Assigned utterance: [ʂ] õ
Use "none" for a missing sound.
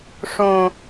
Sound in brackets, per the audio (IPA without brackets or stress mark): ʂ